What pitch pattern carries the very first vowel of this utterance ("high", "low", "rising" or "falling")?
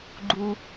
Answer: high